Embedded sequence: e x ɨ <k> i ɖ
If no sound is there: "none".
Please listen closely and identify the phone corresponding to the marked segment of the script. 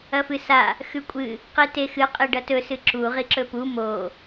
qʼ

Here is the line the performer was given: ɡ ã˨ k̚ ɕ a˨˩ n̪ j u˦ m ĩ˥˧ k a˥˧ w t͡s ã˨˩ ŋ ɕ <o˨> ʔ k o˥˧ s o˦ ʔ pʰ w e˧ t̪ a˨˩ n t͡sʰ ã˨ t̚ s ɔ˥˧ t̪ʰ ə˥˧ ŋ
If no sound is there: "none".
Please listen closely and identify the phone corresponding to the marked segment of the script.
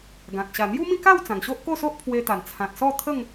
o˦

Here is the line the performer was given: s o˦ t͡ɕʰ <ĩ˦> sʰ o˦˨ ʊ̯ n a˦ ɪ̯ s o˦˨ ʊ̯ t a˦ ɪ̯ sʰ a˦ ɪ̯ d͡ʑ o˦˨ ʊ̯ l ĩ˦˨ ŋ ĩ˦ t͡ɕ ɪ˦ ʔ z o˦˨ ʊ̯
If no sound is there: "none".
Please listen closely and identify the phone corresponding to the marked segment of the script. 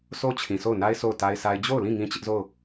ĩ˨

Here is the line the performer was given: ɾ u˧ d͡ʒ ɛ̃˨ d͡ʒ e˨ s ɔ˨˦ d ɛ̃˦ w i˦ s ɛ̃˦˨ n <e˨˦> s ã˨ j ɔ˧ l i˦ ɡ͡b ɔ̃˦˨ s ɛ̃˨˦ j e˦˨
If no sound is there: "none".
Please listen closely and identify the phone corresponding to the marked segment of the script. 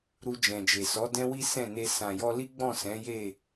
e˧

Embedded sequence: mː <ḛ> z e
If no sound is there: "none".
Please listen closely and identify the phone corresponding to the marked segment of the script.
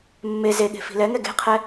e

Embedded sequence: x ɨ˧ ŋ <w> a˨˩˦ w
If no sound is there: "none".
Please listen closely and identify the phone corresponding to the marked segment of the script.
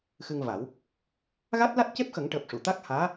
v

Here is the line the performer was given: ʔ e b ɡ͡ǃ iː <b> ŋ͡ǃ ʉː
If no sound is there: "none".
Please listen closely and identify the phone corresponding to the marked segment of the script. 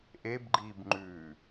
b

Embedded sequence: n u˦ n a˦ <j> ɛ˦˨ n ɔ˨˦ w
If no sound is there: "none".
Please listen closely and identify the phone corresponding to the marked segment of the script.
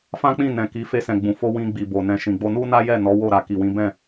j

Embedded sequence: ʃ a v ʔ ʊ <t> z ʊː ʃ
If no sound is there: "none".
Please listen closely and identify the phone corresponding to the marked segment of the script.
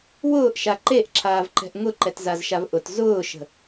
t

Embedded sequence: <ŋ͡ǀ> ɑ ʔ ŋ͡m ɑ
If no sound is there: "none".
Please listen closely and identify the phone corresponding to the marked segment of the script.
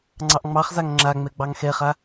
ŋ͡ǀ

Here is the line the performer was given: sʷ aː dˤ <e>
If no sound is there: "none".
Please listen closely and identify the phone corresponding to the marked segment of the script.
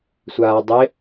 e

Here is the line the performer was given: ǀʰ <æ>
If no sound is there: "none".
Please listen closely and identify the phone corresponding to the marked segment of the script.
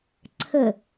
ə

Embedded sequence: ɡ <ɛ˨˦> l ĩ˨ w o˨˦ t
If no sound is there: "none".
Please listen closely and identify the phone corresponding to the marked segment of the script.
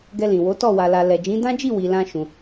ɛ˧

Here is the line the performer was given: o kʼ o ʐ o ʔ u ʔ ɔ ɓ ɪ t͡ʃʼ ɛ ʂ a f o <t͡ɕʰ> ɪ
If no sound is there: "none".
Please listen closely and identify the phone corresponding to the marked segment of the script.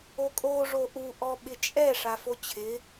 t͡ɕʰ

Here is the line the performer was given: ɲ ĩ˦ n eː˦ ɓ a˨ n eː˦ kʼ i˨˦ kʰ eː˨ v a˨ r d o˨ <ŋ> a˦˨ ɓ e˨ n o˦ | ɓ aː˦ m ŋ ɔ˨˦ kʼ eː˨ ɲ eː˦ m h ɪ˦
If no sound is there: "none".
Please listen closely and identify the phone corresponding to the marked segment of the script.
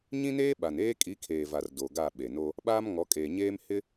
ɡ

